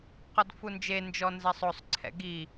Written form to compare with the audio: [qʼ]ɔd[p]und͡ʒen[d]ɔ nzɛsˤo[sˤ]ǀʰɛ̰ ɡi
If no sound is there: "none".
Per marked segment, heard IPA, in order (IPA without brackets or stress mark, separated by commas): q, f, d͡ʒ, sˤ